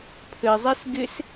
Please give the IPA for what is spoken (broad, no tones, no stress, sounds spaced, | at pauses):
pʰ ɘ zˤ ɛ s ɡ ɪ s